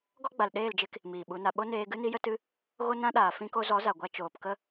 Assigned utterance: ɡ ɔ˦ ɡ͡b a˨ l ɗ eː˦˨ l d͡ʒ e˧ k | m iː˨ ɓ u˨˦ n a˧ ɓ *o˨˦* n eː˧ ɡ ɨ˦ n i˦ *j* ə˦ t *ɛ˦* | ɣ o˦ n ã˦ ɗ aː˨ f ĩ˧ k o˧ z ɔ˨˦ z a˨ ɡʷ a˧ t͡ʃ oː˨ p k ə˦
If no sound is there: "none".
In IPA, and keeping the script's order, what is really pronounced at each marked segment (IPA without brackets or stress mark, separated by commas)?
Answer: o˦, j, ɨ˦